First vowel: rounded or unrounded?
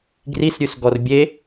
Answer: unrounded